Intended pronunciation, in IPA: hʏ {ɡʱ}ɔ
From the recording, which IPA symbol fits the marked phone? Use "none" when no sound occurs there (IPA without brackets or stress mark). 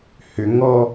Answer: ŋ